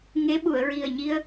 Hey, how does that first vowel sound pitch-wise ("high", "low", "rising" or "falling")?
rising